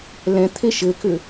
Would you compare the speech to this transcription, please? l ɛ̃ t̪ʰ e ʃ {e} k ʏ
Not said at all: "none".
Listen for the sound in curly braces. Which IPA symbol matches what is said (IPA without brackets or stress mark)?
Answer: ɘ